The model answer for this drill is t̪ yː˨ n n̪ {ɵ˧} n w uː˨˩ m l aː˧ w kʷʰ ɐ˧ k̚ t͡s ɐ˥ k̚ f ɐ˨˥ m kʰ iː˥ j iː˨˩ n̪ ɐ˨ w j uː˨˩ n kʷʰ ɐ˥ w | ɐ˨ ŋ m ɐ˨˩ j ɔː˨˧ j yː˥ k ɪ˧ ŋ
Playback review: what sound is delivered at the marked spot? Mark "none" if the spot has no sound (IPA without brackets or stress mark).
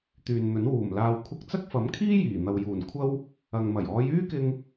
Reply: ɵ˨˥